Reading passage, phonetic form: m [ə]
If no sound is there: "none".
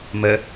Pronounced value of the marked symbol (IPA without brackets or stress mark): ə